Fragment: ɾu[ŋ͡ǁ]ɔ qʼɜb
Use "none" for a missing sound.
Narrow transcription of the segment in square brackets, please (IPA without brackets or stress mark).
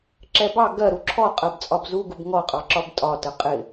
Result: ǁʰ